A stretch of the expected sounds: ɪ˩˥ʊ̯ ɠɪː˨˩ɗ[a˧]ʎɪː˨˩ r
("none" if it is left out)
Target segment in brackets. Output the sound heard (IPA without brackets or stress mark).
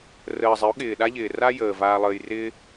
a˥